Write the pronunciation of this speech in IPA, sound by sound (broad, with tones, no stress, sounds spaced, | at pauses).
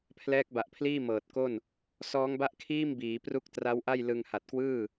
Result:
pʰ l ɛː˦˥ k̚ b a˨˩ ʔ pʰ l iː˥˩ m ɤː˨˩ t̚ k o˥˩ n | s ɔː˦˥ ŋ b a˥˩ ʔ kʰ iː˥˩ m b iː˩˦ p r u˦˥ k̚ t r a˦˥ w ʔ a˥˩ j l ɯ˧ ŋ h a˨˩ t̚ k w ɯː˥˩